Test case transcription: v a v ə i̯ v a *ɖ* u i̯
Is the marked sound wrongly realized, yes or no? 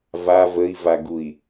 yes